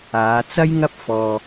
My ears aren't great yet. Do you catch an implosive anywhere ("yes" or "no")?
no